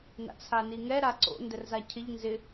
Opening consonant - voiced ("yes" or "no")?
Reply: yes